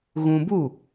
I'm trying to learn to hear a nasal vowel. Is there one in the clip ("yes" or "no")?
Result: yes